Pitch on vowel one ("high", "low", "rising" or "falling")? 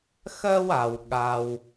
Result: high